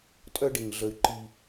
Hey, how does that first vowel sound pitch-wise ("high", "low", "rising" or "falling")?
high